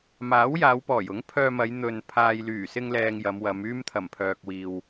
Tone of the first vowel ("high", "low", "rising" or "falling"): rising